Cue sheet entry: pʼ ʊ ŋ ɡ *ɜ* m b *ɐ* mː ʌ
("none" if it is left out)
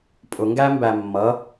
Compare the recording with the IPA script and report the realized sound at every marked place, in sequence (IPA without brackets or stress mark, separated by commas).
æ, æ